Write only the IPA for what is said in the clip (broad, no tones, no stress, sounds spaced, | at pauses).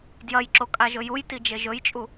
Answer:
d j ɐ j ǁ o kʼ a ʒ ɵ j u j t i d͡ʒ e ʒ ɵ j t͡ʃʼ u